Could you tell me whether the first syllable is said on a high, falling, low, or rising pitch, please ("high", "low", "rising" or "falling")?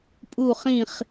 falling